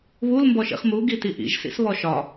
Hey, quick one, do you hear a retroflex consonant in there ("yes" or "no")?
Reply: no